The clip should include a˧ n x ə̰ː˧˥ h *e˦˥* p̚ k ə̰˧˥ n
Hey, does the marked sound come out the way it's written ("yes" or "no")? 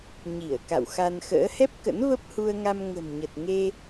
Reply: no